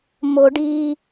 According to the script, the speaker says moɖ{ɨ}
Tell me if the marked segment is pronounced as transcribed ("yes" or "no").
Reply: no